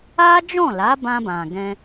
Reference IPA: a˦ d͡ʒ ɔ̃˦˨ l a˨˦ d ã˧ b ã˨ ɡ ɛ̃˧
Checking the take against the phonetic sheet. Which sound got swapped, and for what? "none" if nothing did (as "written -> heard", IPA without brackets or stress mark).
d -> b